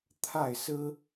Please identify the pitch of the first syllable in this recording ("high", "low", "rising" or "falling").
falling